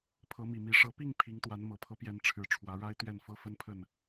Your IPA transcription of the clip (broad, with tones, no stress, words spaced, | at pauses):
pʰɤ˨˦mi˨˩mi˨˦ ʂɤ˨˦pi˥˨ŋ pʰi˨˦ŋt̪wa˨˦n mɤ˨˩pʰɤ˦ pjɛ˨˦nʈ͡ʂʰɻ̩˨˩ ʈ͡ʂʰwä˨˦ɻa˦ɪ̯ t̪ɥɛ˥˨nfɤ˦fə˦npʰə˥˨n